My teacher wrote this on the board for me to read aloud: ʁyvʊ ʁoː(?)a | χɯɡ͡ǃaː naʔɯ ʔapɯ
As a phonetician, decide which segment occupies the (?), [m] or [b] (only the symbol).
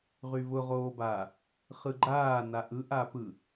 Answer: b